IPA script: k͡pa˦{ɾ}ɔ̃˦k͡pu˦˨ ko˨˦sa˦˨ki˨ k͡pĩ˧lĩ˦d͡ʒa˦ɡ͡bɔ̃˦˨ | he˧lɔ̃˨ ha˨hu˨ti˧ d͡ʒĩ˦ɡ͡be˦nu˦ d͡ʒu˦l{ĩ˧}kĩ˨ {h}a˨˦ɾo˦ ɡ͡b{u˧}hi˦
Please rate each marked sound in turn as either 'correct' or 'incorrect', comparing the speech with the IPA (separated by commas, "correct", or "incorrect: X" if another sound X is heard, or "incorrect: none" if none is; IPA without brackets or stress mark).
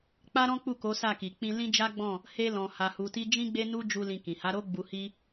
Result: correct, correct, correct, correct